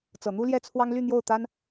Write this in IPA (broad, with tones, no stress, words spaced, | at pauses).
t͡sɤ˨˩n̪u˥ljɛ˥t͡sʰwɑ˥ŋ ly˥˧n̪jo˥˩ʊ̯t̪a˥n